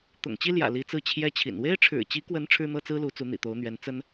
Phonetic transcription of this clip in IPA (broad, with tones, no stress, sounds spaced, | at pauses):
t̪ ʊ̰˨˩ ŋ t͡ɕ i˥ l j ä̰˨˩ l i˧˥ t͡s ɹ̩˥˩ t͡ɕʰ j ɛ˥ t͡ɕʰ ḭ˨˩ n w e˥ ɪ̯ ʈ͡ʂʰ ɻ̩˨˩ t͡ɕ i˧˥ k w ə˧˥ n ʈ͡ʂʰ ɻ̩˥ n̪ ɤ˥ t͡s ɹ̩˥ l u˧˥ t͡s u˧˥ n̪ ḭ˨˩ t̪ o˧˥ ʊ̯ n̪ ɥ ɛ˧˥ n t͡s ə˥ n